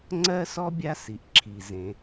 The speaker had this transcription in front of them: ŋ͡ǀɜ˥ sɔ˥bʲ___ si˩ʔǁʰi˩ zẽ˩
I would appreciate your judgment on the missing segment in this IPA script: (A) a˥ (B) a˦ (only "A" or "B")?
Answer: B